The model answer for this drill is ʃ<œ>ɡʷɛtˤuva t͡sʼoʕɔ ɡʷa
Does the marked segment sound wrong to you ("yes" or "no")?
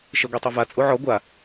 yes